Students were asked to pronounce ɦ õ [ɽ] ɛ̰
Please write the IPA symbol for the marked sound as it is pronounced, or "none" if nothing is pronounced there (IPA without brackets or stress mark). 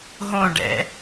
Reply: ɖ